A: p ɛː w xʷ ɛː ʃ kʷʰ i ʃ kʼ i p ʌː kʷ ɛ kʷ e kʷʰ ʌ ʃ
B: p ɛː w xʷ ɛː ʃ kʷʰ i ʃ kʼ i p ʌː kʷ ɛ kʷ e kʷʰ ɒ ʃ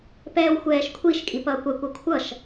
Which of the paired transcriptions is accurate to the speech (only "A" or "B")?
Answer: A